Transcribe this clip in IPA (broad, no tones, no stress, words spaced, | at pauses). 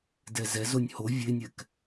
dɛzɛzonʲ ho vʲenʲɛk